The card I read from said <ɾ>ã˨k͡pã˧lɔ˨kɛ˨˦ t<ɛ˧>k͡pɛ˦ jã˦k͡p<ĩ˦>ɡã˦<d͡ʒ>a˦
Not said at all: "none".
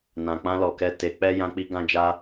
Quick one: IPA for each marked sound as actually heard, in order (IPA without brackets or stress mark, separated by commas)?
n, e˧, i˦, d͡ʒ